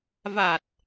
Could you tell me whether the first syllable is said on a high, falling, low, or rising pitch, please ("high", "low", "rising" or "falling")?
low